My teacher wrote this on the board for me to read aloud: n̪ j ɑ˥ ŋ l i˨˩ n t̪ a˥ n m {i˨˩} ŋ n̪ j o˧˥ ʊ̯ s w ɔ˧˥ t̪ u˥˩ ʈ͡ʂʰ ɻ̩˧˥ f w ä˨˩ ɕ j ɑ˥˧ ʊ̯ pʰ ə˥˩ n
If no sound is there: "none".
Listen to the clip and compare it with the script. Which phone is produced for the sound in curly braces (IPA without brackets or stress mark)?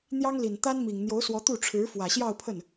i˨˩